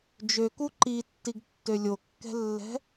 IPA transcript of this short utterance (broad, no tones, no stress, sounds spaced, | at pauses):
d͡ʒ ø k u ǃ i tː i ɡ tː ø lʲ o kː ɛ̤ lː ɛ̤